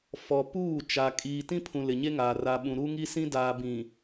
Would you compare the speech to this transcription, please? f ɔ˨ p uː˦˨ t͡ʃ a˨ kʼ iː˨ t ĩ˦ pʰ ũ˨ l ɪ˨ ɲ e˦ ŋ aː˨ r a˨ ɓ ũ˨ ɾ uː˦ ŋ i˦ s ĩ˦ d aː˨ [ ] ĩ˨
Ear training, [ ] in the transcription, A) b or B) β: A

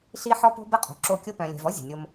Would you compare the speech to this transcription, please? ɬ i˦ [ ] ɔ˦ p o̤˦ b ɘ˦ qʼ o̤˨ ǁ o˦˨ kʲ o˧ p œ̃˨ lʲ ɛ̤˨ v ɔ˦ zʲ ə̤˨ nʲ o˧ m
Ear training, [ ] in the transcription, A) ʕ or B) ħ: B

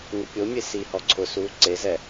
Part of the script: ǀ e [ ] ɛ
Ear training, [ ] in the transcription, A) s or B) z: B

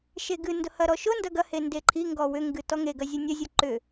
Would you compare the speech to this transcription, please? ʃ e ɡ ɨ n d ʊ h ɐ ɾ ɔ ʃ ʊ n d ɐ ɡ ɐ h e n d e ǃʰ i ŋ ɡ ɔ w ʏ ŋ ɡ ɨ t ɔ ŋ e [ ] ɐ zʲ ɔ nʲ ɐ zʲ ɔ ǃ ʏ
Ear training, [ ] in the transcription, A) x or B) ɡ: B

